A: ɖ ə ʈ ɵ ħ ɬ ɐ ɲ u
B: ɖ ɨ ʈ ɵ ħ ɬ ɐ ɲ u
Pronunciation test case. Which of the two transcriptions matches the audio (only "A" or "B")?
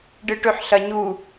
B